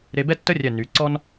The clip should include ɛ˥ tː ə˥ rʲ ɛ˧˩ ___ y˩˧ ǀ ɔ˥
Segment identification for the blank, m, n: n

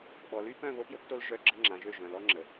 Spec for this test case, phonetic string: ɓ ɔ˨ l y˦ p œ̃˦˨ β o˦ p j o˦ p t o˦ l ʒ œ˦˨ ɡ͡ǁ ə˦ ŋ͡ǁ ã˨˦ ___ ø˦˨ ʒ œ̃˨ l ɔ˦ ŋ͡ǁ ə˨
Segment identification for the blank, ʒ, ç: ʒ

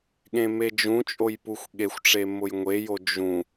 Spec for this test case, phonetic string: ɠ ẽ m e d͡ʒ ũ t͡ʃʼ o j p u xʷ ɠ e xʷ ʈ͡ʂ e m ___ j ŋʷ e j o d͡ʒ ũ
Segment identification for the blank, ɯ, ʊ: ʊ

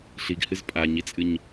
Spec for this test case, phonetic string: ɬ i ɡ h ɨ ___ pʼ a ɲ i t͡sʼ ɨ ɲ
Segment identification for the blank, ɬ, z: z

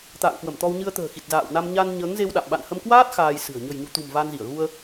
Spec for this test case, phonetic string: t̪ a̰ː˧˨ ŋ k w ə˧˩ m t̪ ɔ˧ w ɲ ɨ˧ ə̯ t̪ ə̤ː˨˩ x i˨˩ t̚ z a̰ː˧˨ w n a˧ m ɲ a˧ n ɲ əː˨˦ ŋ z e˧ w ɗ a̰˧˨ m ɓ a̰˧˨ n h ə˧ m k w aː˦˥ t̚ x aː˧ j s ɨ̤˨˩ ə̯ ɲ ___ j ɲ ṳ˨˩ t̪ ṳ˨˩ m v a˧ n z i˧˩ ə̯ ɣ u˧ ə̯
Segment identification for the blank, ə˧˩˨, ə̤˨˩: ə̤˨˩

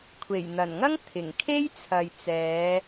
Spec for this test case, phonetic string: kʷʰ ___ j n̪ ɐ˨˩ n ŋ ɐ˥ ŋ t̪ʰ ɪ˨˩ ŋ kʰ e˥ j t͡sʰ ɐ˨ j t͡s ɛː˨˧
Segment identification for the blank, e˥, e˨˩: e˨˩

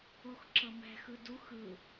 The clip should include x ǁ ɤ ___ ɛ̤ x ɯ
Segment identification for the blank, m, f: m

